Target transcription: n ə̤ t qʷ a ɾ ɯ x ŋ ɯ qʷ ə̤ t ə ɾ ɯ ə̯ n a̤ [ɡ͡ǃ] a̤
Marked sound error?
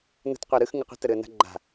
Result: no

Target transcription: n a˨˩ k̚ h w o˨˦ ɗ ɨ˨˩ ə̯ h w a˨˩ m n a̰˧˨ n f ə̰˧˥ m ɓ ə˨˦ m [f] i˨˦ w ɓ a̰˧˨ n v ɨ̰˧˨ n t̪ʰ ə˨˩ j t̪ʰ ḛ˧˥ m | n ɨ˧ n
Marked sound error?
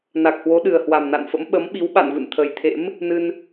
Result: yes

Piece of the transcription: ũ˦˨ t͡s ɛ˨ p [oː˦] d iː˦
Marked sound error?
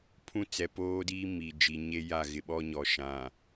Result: no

